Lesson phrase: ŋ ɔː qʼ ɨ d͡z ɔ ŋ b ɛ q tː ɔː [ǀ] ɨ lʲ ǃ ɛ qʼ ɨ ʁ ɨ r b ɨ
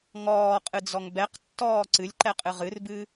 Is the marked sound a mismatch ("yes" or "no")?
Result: no